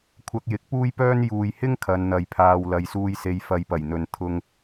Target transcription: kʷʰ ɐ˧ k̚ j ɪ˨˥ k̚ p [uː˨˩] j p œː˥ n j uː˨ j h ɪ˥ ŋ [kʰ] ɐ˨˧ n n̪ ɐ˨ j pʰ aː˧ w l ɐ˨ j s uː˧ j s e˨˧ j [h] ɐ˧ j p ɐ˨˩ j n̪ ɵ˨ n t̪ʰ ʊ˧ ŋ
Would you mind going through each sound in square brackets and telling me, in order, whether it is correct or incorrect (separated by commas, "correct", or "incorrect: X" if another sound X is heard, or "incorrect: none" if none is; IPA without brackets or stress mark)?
incorrect: uː˥, correct, incorrect: f